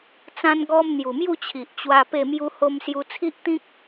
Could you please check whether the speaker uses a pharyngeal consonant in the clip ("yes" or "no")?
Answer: no